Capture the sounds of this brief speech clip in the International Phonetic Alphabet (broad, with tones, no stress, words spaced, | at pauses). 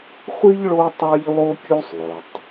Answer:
χʷi˥ʎ ɭo˥tˤa˥ʎlˠo˥ kʲu˥sˤlˠɵ˩tˤ